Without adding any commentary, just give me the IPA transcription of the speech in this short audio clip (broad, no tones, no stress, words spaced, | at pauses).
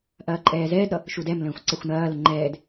ʔɐːǃʼɛːzɛːdɾʌ | ʃudɛmlə̃ːxʷ ǀɐxʷnɐːlə ŋ͡ǃɛːd